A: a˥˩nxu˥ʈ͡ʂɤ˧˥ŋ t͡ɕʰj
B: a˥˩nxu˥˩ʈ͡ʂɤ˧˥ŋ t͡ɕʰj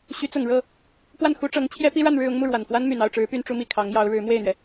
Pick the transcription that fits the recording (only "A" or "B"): A